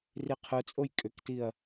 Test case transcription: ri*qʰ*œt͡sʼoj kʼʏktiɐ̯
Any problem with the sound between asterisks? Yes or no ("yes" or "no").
no